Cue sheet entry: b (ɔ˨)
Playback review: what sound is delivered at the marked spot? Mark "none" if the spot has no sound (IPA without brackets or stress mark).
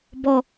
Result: ɔ˨